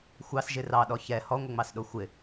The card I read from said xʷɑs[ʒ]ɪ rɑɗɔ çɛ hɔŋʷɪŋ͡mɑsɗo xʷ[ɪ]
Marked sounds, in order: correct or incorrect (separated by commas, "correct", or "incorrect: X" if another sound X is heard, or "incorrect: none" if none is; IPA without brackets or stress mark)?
correct, correct